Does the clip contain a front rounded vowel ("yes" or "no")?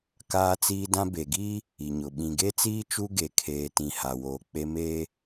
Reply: no